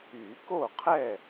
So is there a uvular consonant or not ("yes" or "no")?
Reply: yes